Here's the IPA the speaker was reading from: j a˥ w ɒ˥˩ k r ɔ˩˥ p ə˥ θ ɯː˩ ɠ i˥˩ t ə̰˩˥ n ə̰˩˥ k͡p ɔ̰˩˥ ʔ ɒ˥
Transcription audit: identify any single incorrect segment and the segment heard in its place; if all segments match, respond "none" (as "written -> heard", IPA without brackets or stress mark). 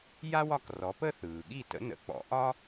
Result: none